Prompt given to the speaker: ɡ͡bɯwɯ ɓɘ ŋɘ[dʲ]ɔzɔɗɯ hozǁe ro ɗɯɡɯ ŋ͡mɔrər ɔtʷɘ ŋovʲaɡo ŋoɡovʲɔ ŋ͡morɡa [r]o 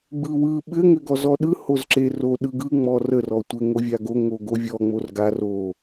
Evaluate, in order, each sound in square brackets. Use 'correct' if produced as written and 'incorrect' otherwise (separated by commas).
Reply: incorrect, correct